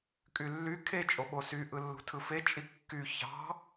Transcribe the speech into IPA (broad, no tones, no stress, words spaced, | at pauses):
kʼylːy kʰe t͡ʃʼoɓosy ʔɯlːṳtʰɯfe t͡ʃʼikːy çɑ̤